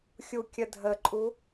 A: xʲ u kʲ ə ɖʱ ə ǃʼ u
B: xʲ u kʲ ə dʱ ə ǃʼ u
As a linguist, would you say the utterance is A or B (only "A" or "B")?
B